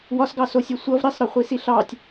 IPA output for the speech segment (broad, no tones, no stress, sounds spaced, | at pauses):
w ɒ s ɡ ɑ s o sʲ e sʷ ʌ v ɾ i sˤ ɾ ɒ χʷ i s i ɬ ɑ tʲ